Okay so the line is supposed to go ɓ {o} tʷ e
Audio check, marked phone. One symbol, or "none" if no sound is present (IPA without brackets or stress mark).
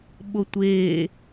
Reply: o